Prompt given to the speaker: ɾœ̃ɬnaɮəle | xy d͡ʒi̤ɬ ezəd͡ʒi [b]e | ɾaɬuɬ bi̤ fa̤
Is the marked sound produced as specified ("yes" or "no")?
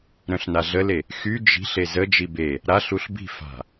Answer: yes